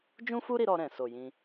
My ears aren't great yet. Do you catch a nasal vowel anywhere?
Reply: yes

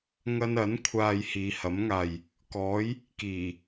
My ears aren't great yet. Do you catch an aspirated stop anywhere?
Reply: yes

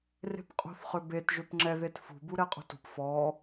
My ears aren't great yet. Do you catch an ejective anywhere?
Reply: yes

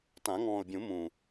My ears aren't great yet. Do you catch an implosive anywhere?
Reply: no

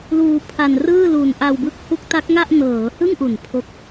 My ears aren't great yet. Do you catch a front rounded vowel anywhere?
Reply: no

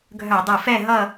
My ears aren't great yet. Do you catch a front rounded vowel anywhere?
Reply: yes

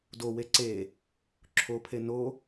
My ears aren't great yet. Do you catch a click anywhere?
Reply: yes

